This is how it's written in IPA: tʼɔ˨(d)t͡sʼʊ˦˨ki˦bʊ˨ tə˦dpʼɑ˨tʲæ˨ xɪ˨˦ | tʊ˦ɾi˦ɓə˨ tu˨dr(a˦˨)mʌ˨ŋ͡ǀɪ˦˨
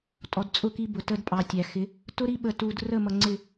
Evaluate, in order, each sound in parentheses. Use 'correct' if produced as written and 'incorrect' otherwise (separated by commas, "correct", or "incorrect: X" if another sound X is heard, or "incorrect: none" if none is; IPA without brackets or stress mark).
correct, incorrect: ə˦˨